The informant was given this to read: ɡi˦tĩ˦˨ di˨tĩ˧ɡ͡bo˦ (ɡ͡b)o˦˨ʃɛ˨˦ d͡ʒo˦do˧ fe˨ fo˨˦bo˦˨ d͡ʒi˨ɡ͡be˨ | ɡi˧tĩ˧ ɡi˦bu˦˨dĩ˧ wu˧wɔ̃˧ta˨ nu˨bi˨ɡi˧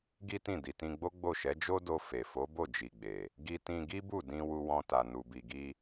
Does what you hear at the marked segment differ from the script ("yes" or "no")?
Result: no